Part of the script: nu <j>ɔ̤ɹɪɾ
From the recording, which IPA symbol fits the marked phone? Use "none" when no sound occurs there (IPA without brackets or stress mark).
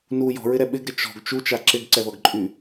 j